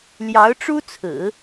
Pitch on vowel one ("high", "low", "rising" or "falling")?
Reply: rising